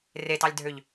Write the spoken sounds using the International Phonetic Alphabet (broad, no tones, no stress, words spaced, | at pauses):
retɑlʲdʱøʎ